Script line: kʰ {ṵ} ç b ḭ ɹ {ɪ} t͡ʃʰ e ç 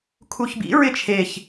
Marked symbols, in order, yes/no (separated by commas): no, yes